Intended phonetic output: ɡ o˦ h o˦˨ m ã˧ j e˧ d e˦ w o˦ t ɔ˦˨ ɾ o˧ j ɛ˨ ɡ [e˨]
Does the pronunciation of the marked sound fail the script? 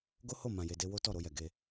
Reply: yes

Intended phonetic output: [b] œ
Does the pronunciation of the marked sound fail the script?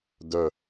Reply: yes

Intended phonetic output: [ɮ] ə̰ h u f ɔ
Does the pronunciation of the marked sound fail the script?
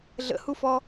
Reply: no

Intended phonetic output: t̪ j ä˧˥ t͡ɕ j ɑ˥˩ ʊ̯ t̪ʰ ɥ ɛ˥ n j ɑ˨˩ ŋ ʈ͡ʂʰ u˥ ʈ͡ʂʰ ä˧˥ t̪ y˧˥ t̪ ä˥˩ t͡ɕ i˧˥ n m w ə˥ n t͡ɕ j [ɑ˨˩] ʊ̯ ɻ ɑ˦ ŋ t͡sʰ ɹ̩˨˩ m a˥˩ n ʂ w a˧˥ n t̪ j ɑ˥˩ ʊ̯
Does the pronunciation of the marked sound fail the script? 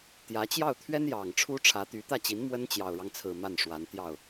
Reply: no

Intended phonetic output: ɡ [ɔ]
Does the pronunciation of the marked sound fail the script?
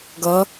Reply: yes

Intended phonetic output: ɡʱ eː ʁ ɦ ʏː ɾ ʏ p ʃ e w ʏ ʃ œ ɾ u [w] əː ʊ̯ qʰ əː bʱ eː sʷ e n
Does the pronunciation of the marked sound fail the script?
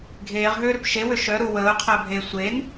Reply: no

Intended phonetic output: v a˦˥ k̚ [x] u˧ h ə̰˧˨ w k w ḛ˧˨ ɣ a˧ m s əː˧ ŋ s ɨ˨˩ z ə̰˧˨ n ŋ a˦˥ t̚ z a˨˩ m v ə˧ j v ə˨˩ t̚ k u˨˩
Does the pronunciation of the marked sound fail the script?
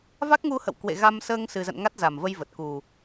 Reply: yes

